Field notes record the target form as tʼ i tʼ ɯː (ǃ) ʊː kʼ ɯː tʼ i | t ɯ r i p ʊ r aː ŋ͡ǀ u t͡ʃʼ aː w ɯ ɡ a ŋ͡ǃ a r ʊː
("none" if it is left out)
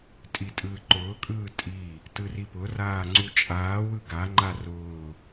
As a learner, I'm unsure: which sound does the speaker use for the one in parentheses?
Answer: ǃ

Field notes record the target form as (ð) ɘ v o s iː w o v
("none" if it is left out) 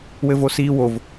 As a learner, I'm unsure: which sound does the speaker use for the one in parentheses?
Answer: w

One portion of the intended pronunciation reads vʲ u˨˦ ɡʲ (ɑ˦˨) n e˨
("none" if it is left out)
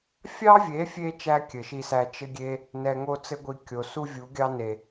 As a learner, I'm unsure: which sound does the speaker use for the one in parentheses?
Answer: ɑ˦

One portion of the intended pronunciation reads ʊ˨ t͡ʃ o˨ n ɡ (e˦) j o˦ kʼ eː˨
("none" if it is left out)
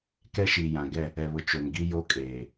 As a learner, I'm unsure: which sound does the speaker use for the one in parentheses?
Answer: i˦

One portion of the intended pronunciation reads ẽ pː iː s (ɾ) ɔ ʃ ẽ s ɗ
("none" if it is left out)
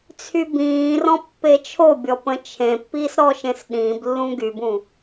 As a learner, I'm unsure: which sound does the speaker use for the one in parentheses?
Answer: ɾ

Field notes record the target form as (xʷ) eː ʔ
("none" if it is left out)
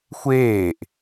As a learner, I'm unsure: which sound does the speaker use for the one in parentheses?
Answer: xʷ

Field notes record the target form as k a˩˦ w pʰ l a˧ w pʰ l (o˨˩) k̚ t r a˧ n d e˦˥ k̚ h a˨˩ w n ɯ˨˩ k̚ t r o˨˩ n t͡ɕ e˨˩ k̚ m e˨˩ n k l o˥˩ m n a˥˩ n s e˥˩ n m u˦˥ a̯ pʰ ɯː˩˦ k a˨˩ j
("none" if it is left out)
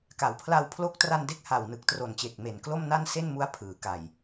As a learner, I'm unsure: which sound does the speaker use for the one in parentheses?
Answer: o˦˥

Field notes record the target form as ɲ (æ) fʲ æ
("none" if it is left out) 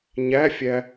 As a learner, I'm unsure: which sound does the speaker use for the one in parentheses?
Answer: æ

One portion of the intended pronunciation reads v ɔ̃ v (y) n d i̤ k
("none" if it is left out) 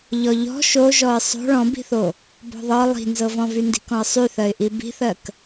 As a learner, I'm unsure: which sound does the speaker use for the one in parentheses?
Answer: y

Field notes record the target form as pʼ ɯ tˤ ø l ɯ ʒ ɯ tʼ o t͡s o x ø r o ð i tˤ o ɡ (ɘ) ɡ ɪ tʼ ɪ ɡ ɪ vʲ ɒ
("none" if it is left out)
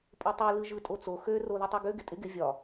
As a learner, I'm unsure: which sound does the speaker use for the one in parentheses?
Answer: ø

